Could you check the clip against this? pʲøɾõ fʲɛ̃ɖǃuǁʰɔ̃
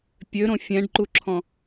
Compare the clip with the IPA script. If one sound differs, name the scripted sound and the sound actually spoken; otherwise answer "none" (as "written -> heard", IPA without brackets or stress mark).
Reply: none